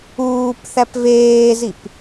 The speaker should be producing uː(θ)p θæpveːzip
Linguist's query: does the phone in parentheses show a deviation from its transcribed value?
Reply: yes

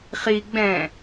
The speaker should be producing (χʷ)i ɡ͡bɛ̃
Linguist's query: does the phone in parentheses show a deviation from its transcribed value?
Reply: yes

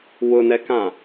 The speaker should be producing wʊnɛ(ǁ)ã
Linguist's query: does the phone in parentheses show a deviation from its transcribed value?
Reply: yes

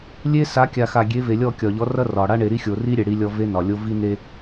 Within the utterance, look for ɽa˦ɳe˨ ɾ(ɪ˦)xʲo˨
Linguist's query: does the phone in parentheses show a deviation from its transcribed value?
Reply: yes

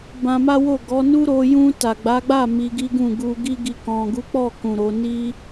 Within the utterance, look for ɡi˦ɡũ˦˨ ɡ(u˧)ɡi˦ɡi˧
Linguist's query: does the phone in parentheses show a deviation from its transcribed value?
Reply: no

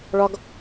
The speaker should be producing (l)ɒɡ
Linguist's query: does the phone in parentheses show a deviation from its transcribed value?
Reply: yes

